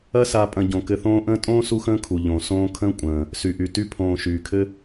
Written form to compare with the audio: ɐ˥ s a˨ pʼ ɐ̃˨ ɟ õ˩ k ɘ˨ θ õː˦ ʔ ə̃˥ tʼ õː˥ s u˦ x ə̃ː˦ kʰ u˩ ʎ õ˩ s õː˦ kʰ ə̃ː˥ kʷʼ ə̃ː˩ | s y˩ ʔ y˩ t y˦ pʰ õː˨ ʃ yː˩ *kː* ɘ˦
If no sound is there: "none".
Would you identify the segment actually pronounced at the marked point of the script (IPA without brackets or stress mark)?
kʰ